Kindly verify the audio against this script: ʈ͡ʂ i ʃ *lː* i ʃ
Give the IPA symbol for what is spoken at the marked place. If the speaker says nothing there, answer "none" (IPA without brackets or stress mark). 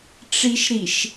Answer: ɾ